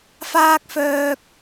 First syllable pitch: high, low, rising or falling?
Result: high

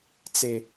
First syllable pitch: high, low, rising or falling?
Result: high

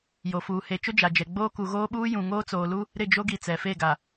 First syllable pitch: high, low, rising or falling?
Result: low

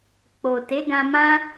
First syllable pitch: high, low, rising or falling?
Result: low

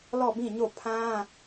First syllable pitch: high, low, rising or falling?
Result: falling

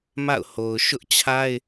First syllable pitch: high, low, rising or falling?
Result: falling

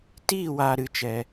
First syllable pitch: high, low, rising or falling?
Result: falling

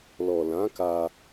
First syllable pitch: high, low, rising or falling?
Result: low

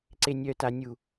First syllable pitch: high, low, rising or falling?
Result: low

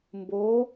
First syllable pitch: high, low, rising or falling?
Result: rising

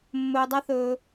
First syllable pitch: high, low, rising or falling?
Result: low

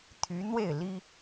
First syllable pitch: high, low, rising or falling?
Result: rising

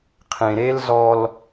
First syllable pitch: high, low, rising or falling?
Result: low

